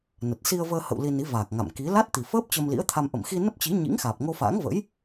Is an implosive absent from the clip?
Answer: yes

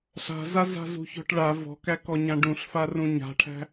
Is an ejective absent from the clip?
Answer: yes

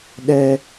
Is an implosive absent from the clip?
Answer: no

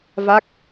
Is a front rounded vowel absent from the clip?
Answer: yes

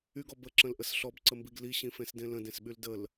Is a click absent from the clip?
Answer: no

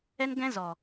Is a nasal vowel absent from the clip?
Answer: no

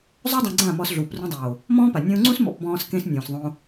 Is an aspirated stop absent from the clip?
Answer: yes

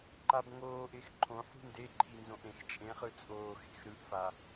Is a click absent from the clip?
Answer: no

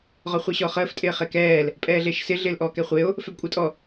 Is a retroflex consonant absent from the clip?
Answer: yes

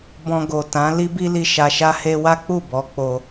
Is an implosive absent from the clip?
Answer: yes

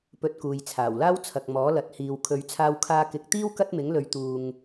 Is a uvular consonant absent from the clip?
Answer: yes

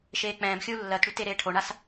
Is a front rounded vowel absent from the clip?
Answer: no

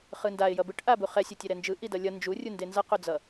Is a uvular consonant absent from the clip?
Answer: no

